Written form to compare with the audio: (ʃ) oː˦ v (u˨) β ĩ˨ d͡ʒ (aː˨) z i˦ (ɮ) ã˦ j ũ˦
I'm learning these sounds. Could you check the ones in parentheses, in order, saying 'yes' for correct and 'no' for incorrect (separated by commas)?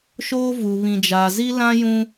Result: yes, yes, yes, no